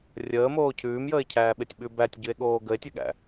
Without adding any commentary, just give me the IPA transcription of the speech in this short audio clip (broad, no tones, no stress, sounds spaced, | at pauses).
rʲ əː m oː cʰ ʉː m j əː e̯ cʰ æː ɓ e tʲ ɓ ʉ b æ tʲ ɟ ʉ e̯ ɠ oː ɡ ə e̯ tʲ e ɠ æ̰